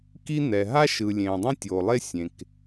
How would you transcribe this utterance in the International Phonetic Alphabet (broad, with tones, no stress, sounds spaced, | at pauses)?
k i˥ n̪ ɛ˩ ɦ a˥ ʃ ɯ˩ lʲ ẽː˩ dˤ ĩ˥ tʲ oː˩ lˠ e˥ sʲ ẽ˩ k